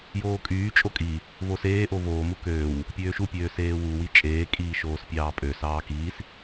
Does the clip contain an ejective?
yes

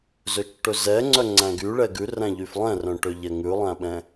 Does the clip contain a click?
yes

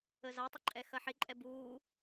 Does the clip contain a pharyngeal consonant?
yes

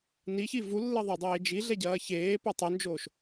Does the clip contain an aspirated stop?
no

